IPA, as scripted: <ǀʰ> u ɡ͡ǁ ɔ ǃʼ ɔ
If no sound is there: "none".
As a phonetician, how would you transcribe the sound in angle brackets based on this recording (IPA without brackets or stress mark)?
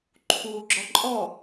ǃʰ